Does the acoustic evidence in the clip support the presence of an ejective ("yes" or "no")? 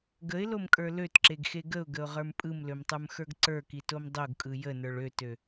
yes